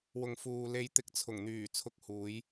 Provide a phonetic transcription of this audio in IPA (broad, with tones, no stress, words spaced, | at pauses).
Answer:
wʊ˨ŋfuː˨ le˨˧jt̪ɪ˨˥k̚ t͡sʰʊ˨˩ŋn̪yː˨˩ t͡sʰʊ˧k̚huː˨˧j